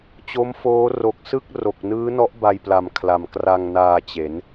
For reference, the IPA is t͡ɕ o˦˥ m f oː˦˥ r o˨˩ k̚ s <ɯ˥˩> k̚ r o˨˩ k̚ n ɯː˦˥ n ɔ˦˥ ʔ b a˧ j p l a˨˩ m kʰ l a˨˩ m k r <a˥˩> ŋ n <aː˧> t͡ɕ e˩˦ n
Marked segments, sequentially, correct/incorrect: correct, incorrect: a˧, correct

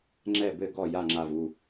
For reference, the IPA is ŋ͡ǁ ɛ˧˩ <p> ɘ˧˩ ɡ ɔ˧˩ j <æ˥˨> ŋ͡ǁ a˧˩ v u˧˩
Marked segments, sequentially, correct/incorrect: incorrect: b, incorrect: a˥˨

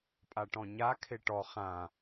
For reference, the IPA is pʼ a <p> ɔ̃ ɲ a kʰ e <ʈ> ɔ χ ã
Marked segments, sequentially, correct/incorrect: incorrect: ʈ, correct

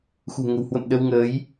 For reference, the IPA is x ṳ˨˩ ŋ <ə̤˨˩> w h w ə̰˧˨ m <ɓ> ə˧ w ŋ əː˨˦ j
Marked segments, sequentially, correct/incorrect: correct, incorrect: ɗ

